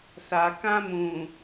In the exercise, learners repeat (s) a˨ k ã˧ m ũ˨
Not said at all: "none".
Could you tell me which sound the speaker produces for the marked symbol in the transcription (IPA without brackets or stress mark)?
s